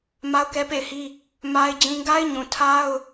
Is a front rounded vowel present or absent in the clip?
absent